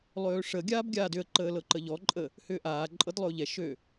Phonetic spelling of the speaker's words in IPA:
lˠ øː ʂ ə ɡʲ aː b ɡʲ aː d ʏ ə̯ ǃ əː l ɤ ǃ ə ʎ ɔ ǃʼ ə | h ʏː ʔ aː ǃʼ ɤ d lˠ ʏ ʊ̯ ʎ ɛ ʃ ø

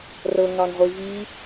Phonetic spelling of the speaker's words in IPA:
r ɤ ŋ ɑ ŋ ʁʷ i v i

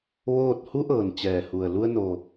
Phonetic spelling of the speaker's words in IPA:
ʋ oː˥˨ t̚ h u˧˥ ʔ ɤː˩ n t͡ɕ ɛː˩ h u˩ ə̯ l u˧ ə̯ n o˩

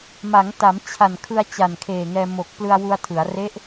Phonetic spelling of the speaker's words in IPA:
m a˩˦ ŋ t a˩˦ m t͡ɕʰ a˨˩ n kʰ ɯ˧ a̯ t͡ɕ a˨˩ n kʰ eː˨˩ ŋ ɛː˧ m o˨˩ k̚ p l ɯ˧ a̯ w u˧ a̯ tʰ ɯ˩˦ a̯ r e˦˥ ʔ

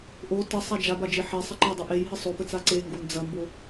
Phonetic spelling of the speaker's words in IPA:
ʔ o t ɘ sˤ a d͡ʒ a b a d͡ʒ e ħ e sˤ ɐ ǃ ɐ dˤ ɨ ʔ e j ɦ ɨ sˤ o p ɘ t͡s a ǀ e ŋ ɡ o n d͡z ɐ m b o

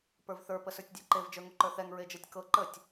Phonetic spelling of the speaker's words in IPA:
p ə˞ v θ ə˞ p ə s ə˞ tʲ dʲ ə˞ ǃ e v d͡ʒ ə˞ ŋ u ǃ ə˞ θ ɛ ŋ ɹ e d͡ʒ ɤ tʲ k ɤ ǃ ə tʲ

